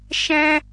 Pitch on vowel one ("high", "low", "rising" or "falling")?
high